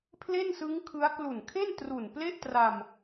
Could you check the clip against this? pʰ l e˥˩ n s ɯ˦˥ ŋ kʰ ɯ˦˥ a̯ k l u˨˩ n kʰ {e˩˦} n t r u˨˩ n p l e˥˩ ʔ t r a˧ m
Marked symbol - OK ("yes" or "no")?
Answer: no